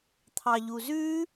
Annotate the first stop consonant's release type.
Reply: aspirated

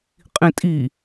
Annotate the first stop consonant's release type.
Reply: ejective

